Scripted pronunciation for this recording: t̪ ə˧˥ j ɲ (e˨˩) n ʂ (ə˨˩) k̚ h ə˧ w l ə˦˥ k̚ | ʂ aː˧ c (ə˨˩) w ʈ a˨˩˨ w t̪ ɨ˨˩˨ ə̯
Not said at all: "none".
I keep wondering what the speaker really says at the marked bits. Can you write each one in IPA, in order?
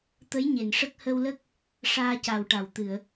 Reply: e˨˩˨, ə˦˥, a˨˩

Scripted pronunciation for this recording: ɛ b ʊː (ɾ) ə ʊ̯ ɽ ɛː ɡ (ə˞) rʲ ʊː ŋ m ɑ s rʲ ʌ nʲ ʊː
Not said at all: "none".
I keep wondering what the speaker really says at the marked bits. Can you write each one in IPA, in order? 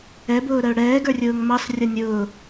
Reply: ɾ, ə˞

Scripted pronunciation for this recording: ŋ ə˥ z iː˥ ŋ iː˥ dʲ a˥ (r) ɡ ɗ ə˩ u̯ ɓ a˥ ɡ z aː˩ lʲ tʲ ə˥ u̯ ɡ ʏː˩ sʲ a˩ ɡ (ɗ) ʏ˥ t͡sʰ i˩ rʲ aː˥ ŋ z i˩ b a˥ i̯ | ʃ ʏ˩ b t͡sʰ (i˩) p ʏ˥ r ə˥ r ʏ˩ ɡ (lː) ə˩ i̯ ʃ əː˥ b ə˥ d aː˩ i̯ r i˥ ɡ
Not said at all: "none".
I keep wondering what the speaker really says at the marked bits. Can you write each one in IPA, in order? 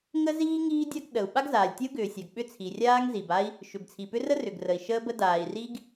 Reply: none, ɓ, i˩, r

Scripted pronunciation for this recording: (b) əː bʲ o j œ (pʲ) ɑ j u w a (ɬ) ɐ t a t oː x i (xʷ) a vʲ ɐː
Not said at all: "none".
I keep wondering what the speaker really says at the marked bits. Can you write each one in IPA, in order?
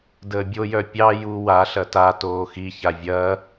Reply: d, pʲ, ɬ, ç

